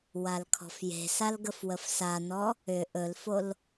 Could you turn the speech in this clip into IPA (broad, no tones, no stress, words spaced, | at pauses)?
walkʰɔ̤fje̤sal ɡəfwəfsanɔ | ʏ ʔɵlfol